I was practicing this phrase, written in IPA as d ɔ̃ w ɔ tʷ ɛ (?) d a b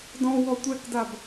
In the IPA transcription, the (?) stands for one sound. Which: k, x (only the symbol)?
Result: k